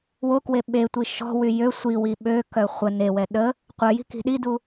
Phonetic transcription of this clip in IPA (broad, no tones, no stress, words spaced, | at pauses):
wokwe ɓetʷi ʃɔ̤wy jø sʷiwi ɓøkœ χʷə newɛ ɗə | qʷœji̤ki̤ ɗidu